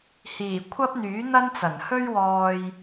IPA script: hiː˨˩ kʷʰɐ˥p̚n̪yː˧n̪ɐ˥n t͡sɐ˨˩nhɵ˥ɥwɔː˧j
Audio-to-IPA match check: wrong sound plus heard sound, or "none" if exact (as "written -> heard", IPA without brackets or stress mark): yː˧ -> yː˨˥